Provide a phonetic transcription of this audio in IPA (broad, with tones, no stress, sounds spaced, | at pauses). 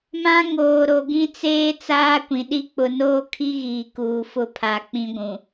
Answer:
m ã˦ ŋ oː˨ ɾ o˨ ɡ ĩ˦ t͡s eː˦ t͡s aː˦ kʷ ĩ˨ ɗ i˦ k͡p ʊ˨ n oː˦ kʰ i˦ ɣ iː˨ k uː˨ f ʊ˦˨ pʰ a˨ k͡p ĩ˦ ɡʷ ũ˨